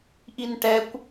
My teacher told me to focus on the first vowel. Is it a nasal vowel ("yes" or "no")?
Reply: no